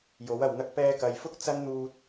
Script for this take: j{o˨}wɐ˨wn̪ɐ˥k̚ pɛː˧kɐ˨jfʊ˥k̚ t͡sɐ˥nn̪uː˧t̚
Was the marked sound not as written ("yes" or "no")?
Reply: yes